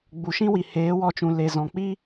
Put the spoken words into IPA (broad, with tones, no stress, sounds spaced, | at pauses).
ɡ͡b u˨ ʃ ĩ˦ w i˨ h eː˨˦ w ɔ˧ t͡ʃ ũ˨ l e˨ z ɔ̃˨ k͡p i˦